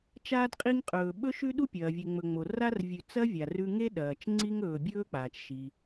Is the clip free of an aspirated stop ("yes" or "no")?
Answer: yes